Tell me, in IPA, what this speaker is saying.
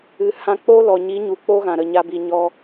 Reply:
ɨ˨ hã˧k͡po˦ lɔ˨ɲi˨˦ ɲu˨k͡po˦ɣã˨ ɾə˨ɲa˧bi˨ ɲɔ˧

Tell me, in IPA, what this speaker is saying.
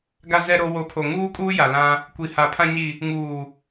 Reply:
ɡa˨zɛ˨ɾo˨ wo˨˦pʰo˨ ŋuː˦kʼuː˦ ja˨lã˦ | kʷi˨ha˨ pʰã˨ɲi˨ | ŋuː˨

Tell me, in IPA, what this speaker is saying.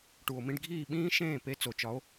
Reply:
ʈu˩o̯mĩ˧ɖɡʱiː˥˩ ɓĩː˥ʃẽː˥˩pe˧ t͡so˩t͡ʃɒ˩˥o̯

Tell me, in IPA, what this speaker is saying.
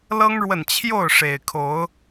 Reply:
lɤ˦ŋɻwə˨nt͡ɕʰjo˥˨ʊ̯ʂe˨˩ɪ̯ kʰo˨˦ʊ̯

